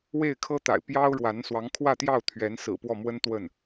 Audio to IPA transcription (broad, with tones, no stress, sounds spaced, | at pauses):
w e˥˩ ɪ̯ kʰ ɤ˥ t̪ a̰˨˩ ɪ̯ p j ɑ˥ ʊ̯ ɻ w a˧˥ n s w ɑ˧˥ ŋ kʰ w ä˥˧ t̪ j ɑ˥˩ ʊ̯ t̪ʰ ɥ ɛ˧˥ n s ɹ̩˨˩ p w ɔ˥˩ m w ə˥ n t̪ w ə˥˩ n